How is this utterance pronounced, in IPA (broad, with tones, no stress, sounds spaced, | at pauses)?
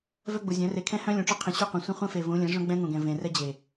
v œ˦ ɡ͡b u˨ zʲ œ̃˨˦ r e˨ kʰ ɛ̃˦ h œ̃˦ lʲ ũ˨ ʈ͡ʂ œ˦ qʰ ɛ̃˨ ɕ u˦˨ qʷ ẽ˨ sʷ ẽ˦ χʷ ɛ̃˦ f e˨ v ũ˨˦ lʲ ẽ˨˦ ʐ œ̃˦ ɡ͡b ɛ̃˦ ŋ ũ˨ ɡ ɛ̃˨ v ẽ˨ r ɛ˦ d͡ʑ e˨